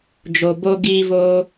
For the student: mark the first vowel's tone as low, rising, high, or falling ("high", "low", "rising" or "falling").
low